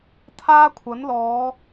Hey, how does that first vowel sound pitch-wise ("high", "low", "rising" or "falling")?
high